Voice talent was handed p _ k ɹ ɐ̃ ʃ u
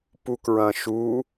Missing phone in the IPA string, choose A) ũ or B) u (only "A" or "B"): B